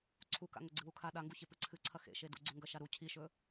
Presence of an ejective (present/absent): absent